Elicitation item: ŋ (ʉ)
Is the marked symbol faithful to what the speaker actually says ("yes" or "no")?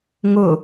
no